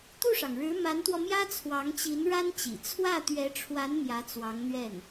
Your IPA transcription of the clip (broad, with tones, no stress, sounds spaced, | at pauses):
t̪ u˥˩ ʂ ɑ˩ ŋ ɻ ɻ̩˧˥ m a˧˥ n t̪ w ɔ˧ m j ä˥ t͡sʰ w ɑ˧˥ ŋ t͡ɕ i˧˥ n ɻ a˥ n t͡ɕ ḭ˨˩ t͡sʰ w ä˥˩ t̪ ɥ ɛ˧˥ ʈ͡ʂʰ w a˧˥ n m j ä˧˥ t͡s w ɑ˧˥ ŋ n̪ ɥ ɛ˥˩ n